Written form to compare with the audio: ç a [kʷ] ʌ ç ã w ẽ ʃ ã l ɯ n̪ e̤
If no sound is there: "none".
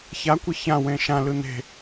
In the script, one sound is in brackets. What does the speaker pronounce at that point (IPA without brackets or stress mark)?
kʷ